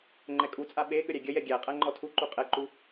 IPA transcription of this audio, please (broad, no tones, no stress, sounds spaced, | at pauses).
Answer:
ŋ͡ǃ ɛ kʼ u t͡sʼ a ɓ e ɠ ə ɾʲ æ ɡʲ ə j ɛ ɡʲ æ qʼ æ ŋ͡ǃ ɔ tʰ u ǃ u qʼ ɛ ǃ u